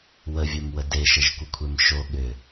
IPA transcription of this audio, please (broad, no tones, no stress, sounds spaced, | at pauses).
w ə vʲ ə˞ m w ə d e ʃ ə ʒ kʷ ə kʷʰ e m ʃ o ɠ ʏ